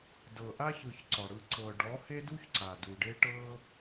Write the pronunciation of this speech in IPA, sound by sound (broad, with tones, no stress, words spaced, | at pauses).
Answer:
dɤ˨ʔa˦çɯ˨ç ǀɔ˨ɽɯ˧ ǀɤ˨ɖɔ˨˦ he˦du˦ç ǀa˨du˨ɖe˦ ʈɤ˦